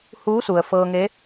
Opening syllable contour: rising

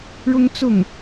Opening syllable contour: high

